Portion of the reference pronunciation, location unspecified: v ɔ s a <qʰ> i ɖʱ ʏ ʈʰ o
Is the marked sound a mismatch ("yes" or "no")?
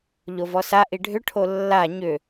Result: yes